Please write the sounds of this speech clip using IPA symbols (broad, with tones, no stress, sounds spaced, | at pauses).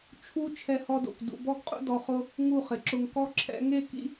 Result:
t͡ʃʰ u˦ t͡ʃʰ ɛ˦ h ɔ˦ d o̰˨ k d ṵ˧ b ɔ˦ ɡ qʼ ṵ˦ d ɔ˧ χ ʊ˦ | ŋ u˦˨ χ ɪ˨ ǁ ʊ˧ ŋ k ɔ˧ ǁʰ ɛ̰˧ ŋ e˦˨ k ḭ˦